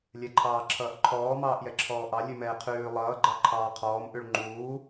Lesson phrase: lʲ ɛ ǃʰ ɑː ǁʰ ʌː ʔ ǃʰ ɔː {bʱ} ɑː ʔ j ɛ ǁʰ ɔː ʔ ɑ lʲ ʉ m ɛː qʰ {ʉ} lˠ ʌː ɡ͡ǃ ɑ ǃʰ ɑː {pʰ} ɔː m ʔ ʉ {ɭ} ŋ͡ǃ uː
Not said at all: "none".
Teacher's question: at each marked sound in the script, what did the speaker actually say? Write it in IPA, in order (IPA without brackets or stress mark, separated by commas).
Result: m, ʉː, qʰ, ɭ